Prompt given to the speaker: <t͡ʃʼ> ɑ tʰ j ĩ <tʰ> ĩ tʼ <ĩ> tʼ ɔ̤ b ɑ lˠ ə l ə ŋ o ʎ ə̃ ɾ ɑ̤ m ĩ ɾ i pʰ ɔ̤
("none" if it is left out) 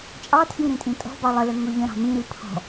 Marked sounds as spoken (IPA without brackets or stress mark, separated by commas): t͡ʃʼ, ɾ, ĩ